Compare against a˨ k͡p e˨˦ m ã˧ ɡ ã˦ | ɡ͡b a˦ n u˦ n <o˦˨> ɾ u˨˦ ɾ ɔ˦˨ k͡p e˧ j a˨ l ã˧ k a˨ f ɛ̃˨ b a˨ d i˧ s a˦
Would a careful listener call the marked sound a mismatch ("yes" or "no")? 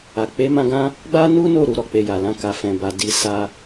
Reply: no